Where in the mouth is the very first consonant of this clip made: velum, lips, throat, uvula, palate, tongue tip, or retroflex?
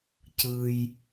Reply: palate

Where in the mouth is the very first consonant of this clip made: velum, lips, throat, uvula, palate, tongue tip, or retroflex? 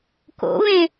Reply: velum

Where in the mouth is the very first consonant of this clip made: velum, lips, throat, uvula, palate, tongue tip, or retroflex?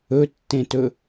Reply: tongue tip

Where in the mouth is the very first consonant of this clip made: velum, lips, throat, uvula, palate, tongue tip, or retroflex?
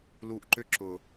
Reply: tongue tip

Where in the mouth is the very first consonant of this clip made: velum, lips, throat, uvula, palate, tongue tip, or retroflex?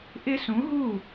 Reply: throat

